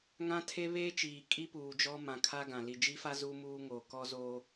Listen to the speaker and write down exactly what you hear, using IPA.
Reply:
ŋ ã˦ tʰ e˦ β eː˦ t͡ʃ iː˨ kʼ i˦ p uː˨ d͡ʒ ɔ˦ m ã˨ kʰ a˦ ɡ ã˨ l i˨ d͡ʒ i˦ f a˦ z uː˦ m uː˦ ŋ oː˨ k ɔ˦ z oː˦

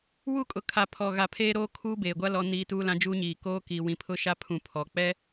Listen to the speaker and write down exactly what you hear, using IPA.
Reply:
w u˦ kʼ ʊ˨ kʰ a˨ pʰ ɔ˨ ɣ a˨ pʰ eː˦ ɾ oː˦ kʰ uː˦ b eː˨ ɡʷ a˦ l ɔ˨ n iː˨ t uː˦ l ã˦ d͡ʒ uː˦ ɲ iː˨ k oː˦ k iː˨ w ĩ˨ pʰ ʊ˦ ʃ a˦ pʰ ũ˨ pʰ ɔ˨ k͡p ɛ˦

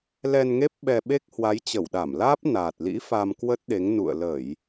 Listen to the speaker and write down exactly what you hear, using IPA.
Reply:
l ɛ˧ n ŋ e˦˥ p̚ ɓ ɛ˧ ɓ e˦˥ k̚ h w a˨˦ j t͡ɕ ə˧˩ w ɗ a˧˩ m l aː˦˥ p̚ n aː˨˩ t̚ l ḭ˧˥ f a˧ m k w ə˦˥ t̚ ɗ e˨˦ ŋ n ṵ˧˨ ə̯ l ə˧˩˨ j

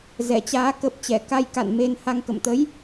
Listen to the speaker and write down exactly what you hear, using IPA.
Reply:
z ɛ˧˩ t͡ɕ aː˨˦ k ə˨˩ p̚ t͡ɕ ɛ˧˩ k a˧ j k a̰˧˨ n m e˧ n h a˧ ŋ k ə̰˧˨ m t̪ ə˨˦ j

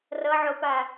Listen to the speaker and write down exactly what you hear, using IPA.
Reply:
r ʌ ʕ o p a

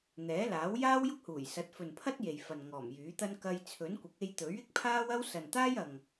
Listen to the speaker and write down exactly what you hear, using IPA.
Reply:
n̪ ɛː˨˥ l aː˨˥ w j aː˥ w j ʊ˥ k̚ h uː˨˩ j s ɐ˨˥ t̚ f ɵ˨ n pʰ ɐ˥ t̚ j e˨ j f ɐ˨ n ŋ ɔː˨˩ m j yː˨˥ t̪ ɐ˥ n k ɐ˧ j t͡sʰ ɵ˨˥ n kʷ ɪ˨˥ k̚ e˧ j t̪ ɵ˨˥ ɥ ɪ˥ k̚ pʰ aː˥ w ɐ˥ w s ɐ˨ n t̪ aː˥ j ɐ˨ ŋ

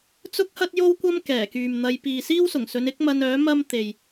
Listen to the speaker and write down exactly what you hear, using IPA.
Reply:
t͡s ʊ˥ k̚ h ɐ˥ t̚ j o˥ w kʷ ɐ˥ m k ɛː˨˩ k yː˨ m n̪ ɐ˧ j p iː˨ s iː˥ w s ʊ˨˩ ŋ s ɵ˨˧ n ɪ˥ k̚ m ɐ˧ n œː˨˥ m ɐ˥ m t̪ e˨ j

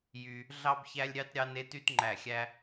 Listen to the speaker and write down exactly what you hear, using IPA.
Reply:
j y˥ | ɮ ɑ˥ b ç æ˥ lʲ ɾʲ ɑ˥ t ɾʲ ɑ˥ n e˥ t y˥ t ŋ͡ǃ æ˥˨ xʲ æ˥

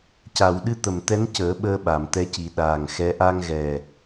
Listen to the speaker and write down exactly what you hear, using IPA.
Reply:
c a˨˩˨ w ɗ ɨ˧ t̪ ə˨˩ m t̪ ɛ˧˥ n c əː˨˩˦ ɓ əː˧ ɓ a˨˩˨ m t̪ ɛ˧˥ c i˨˩˦ ɗ aː˨˩ ŋ x ɛ˧˥ ʔ a˧ ŋ ɣ ɛ˨˩

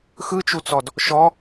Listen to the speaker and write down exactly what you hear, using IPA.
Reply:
x ɯ t͡ʃ u t͡s ɔ d | ʃ ɔ

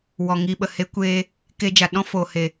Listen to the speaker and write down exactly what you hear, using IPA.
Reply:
w ɔ˨ ŋ i˧ ɓ ə˨ h e˦ kʷ eː˧ | k e˧ d͡ʒ a˨ ɗ ɔ̃˦ f o˨ h e˨

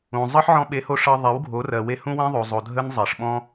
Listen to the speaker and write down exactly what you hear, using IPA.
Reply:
ũ˨ zˤ ɤ˦ ħ ʕ ɔ̃˧ ɓ e˨˦ h o˧ ʂ ɤ˧ ðˤ e˨˦ w ɡʱ o˨˦ r ɜ˨ w e˧ h ũ˦ w ẽ˦ ðˤ o˨ zˤ o˨ dʱ ə˦ n zˤ ɜ˨ ʂ ɓ ɔ̃˦

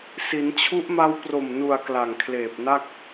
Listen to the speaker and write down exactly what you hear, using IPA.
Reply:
s i˩˦ n t͡ɕʰ u˦˥ ʔ m a˦˥ w p r o˨˩ m n u˨˩ a̯ k l a˨˩ ŋ kʰ l eː˨˩ p̚ n a˥˩ k̚

